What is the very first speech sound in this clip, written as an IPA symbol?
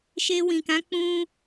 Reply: ʃ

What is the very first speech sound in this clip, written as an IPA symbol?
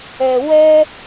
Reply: ɛ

